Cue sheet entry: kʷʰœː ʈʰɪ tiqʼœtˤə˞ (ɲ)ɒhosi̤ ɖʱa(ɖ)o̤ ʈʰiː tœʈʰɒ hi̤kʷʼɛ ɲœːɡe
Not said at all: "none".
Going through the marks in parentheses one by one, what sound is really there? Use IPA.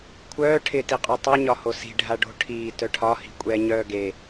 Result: ɲ, ɖ

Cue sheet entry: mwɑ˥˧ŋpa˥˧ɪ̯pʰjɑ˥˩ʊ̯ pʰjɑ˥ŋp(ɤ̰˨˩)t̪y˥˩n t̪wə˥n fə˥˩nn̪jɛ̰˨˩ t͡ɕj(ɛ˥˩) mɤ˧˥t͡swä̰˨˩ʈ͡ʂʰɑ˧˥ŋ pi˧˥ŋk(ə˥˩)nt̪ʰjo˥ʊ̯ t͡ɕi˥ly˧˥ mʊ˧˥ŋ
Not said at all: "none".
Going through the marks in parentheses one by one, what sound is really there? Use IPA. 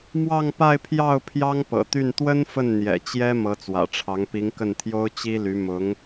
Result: ɤ̰˨˩, ɛ˥, ə˥˩

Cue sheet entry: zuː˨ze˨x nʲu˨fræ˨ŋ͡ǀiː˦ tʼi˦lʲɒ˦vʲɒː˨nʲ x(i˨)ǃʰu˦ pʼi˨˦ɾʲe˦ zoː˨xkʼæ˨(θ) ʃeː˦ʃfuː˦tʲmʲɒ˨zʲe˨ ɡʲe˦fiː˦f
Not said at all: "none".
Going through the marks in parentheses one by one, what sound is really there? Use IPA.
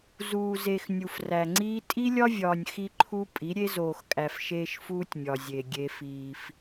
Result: i˦, f

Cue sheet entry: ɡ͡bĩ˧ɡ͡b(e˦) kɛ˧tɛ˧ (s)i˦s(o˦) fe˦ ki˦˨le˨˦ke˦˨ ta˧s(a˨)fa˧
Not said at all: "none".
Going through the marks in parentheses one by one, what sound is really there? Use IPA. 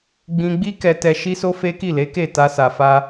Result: i˦, ʃ, o˦, a˨

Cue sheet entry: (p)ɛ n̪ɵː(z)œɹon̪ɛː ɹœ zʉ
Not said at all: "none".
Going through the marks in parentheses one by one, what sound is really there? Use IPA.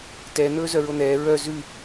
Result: t, z

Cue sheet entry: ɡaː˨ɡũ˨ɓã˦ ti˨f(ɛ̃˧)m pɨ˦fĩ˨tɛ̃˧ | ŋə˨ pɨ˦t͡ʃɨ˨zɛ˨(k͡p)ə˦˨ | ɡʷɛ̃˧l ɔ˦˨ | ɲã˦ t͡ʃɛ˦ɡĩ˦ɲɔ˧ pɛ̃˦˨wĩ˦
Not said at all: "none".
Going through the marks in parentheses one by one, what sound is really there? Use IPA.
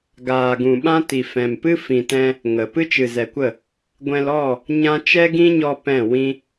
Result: ɛ̃˨, kʷ

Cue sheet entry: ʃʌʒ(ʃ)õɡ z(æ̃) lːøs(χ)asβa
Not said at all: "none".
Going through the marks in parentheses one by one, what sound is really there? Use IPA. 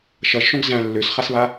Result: ʃ, æ̃, χ

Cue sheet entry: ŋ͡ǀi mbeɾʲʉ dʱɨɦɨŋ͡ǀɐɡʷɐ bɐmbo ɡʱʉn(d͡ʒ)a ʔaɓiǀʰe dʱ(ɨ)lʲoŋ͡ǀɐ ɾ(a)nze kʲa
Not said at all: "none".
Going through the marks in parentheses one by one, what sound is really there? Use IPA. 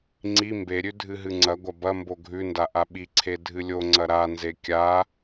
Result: d, ɨ, a

